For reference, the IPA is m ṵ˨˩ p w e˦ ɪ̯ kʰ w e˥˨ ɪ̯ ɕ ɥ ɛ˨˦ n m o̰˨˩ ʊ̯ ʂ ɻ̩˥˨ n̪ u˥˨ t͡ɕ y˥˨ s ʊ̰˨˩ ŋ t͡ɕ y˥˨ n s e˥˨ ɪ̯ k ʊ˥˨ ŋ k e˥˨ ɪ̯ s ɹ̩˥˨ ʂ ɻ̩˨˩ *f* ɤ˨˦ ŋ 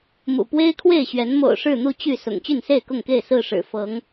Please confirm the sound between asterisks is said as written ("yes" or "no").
yes